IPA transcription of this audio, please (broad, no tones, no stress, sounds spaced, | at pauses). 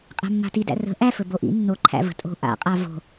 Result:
qʼ æ̤ mː a̤ t i d æ̰ r ə̤ ʔ æ f ɵ b o ʔ ḭ nː o ǃʰ æ̰ v ə̤ tʼ o̤ ʔ a̰ qʼ a v o̤